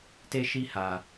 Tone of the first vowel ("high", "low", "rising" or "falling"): high